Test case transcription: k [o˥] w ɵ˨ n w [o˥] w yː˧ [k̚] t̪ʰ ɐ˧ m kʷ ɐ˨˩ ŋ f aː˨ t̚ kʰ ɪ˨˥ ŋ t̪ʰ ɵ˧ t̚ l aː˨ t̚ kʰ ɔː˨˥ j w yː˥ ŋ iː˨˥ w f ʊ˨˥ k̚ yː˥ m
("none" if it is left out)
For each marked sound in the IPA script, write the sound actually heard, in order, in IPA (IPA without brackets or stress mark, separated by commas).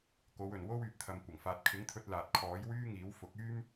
o˨˧, o˥, p̚